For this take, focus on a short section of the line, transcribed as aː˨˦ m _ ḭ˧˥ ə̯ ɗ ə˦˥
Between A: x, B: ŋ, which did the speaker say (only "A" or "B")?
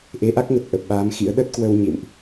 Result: A